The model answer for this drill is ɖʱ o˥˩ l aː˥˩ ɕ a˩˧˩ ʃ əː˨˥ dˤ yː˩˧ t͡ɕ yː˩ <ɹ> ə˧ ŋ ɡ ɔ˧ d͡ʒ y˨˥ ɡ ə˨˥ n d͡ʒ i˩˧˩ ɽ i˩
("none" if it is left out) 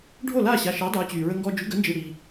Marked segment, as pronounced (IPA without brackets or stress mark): ɹ